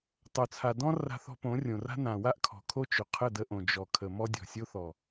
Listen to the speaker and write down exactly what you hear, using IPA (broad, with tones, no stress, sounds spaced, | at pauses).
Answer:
tˤ o˨ t͡sʰ a˨ d ɔ̃˦ r a̤˧ θ ɔ̤˧ p õ˨˦ rʲ õ˨ r a̤˦ n ã˨ w a˦ ʔ kʰ ɔ̤˨ kʰ o˦ t͡ʃ ɵ˨ qʰ ə˦˨ d ə˧ ʔ õ˨ d͡ʒ ɔ˨ kʰ ə˨ m ɔ˧ dʲ ɔ̤˨ sʲ o˧ θ ɔ˨